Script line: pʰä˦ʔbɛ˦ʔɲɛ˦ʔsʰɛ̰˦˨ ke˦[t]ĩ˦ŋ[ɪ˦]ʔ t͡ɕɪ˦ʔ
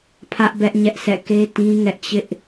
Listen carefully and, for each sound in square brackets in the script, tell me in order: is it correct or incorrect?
correct, incorrect: ɛ˦

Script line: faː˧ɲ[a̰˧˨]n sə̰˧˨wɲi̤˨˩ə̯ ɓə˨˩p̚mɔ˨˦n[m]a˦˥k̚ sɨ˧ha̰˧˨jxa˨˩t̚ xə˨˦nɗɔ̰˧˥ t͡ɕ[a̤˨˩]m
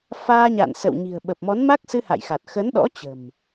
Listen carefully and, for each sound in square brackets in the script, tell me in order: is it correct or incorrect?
correct, correct, incorrect: ə̤˨˩

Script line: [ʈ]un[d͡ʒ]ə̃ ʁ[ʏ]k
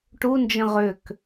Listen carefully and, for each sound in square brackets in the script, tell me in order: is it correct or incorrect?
correct, correct, correct

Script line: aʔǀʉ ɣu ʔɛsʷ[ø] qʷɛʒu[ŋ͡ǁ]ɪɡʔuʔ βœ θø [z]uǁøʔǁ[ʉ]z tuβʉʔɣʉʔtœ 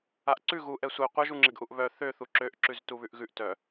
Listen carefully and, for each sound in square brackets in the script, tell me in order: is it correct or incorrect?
incorrect: ɛ, correct, incorrect: θ, correct

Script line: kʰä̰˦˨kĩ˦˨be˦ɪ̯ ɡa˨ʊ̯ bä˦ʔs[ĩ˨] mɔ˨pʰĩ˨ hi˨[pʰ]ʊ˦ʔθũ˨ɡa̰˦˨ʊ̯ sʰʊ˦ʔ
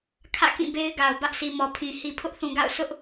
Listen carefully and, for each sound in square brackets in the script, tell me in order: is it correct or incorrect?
incorrect: i˨, correct

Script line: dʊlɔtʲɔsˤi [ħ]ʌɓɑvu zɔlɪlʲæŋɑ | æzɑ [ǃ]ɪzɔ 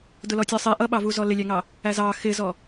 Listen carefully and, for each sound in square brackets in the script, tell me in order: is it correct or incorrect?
incorrect: ʔ, incorrect: x

